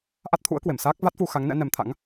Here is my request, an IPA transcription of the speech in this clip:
ʔ a˦˥ t̚ t̪ʰ ṵ˧˥ ə̯ k w e˧˩ m s aː˦˥ k̚ v a˦˥ t̚ f u˧ x a˨˦ ŋ n ɛ̰˧˥ n ɛ˨˦ m t̪ʰ a̰˧˥ ŋ

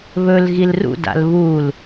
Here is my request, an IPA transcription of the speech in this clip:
β ɵ l ɣ i l r ṵ d a̰ l β u l

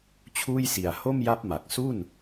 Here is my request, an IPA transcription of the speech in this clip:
t͡ɕʰ uː˥˩ j s i˨˩ a̯ h o˥˩ m j a˦˥ p̚ m a˨˩ k̚ s u˥˩ n

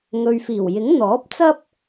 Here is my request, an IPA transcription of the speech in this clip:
ŋ ɵ˨ ɥ f iː˨˩ w j ɪ˨˥ ŋ n̪ ɔː˨˥ p̚ t͡s ɐ˥ p̚

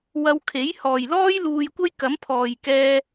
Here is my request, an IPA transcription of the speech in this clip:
w ɐ˧ w kʰ e˨˥ j h ɔː˨ j l ɔː˥ j l uː˧ j kʷ ɐ˥ j k ɐ˨˥ m pʰ ɔː˨ j k ɛː˧

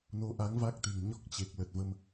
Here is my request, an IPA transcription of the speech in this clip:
n o˨˦ ʔ a˨˦ ŋ v a˦˥ k̚ t̪ e̤˨˩ ŋ ɲ ɔ˦˥ k̚ t͡ɕ e˨˩ k̚ l ə˨˩ t̚ v ə˧ m

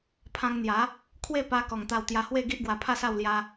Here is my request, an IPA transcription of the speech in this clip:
pʰ ã˧ ŋ n̪ j a˨˦ | kʰ w e˥˧ p a˧ k ɔ˨˩ ŋ t̪ a˧ w t̪ j a˧ h w e˥˧ ɡ i˦ ʔ ɡ w a˧ pʰ a˥˧ s a˥˧ w l j a˦

